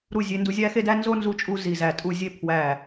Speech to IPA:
ɾ u˦˨ zʲ e˧ n d u˧ zʲ æ˦ x e˦ d æ˦ n z o˦ n z u˧ t͡ʃʼ u˧ z i˨ z æ˨ tʼ u˦˨ zʲ e˦ pʰ w æ˦˨

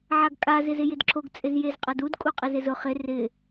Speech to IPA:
ʕ a ɡ kʼ a z ɪ z ɪ j ɪ d ǁʰ o ɡ t͡sʼ ɪ z j e z qʼ a d u d kʼ u qʼ ɪ z ɪ z ʊ χ ɪ r ɪ

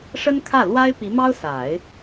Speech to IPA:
ʂ ə˥ n kʰ ä˥˩ l w a˥ ɪ̯ p i˧˥ m ɑ˥ ʊ̯ s a˨˩˦ ɪ̯

